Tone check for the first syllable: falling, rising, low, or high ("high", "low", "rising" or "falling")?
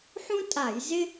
high